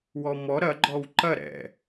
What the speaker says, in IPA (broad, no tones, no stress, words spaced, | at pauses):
wɔmɔ ɾɐ ɡ͡ǃɔwǃɐ ɾɛ̰